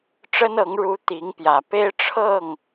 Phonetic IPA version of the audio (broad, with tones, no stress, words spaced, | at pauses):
ʈ͡ʂə˥nɤ˧˥ŋ ɻu˧˥ t̪i˧˥ŋpjä˨˩ pe˥ɪ̯ ʈ͡ʂʰɤ˥˩ŋ